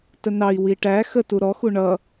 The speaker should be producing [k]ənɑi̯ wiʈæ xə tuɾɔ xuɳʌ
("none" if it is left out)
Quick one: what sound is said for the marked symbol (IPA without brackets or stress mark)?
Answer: t